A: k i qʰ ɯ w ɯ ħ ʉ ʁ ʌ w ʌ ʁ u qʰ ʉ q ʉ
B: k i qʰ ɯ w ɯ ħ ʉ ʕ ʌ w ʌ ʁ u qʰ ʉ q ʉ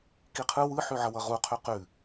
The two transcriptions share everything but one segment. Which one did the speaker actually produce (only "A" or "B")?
B